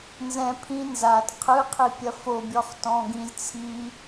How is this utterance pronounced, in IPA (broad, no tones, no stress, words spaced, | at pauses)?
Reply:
nzɛ̃ pʰĩ nzat qʰɨqʰi pʲɐfobʲɔχ tɔ̃ɡĩz t͡sʰi